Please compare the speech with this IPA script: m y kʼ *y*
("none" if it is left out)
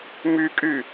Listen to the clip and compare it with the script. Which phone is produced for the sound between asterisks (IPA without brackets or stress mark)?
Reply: y